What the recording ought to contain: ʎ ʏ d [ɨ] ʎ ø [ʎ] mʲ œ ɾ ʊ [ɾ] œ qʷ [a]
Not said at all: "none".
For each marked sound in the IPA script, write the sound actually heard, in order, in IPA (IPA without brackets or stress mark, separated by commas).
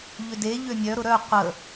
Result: e, none, ɾ, ə